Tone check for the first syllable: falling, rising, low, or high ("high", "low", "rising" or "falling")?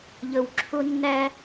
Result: low